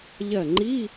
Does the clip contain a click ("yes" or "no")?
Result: yes